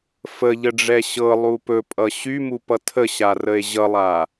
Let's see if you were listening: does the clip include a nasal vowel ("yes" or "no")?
no